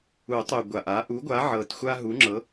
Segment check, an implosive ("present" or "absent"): absent